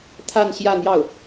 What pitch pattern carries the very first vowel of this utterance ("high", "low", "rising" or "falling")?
falling